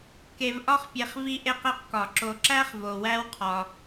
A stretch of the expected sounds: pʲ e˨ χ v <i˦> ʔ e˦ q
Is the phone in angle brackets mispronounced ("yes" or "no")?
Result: no